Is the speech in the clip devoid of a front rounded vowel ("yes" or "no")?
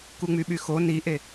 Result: no